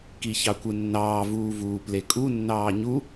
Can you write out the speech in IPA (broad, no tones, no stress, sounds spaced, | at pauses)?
k i ç ɑ kʷ ɯ nː ɑː v uː v uː p l e kʼ u nː ɑː ɲ u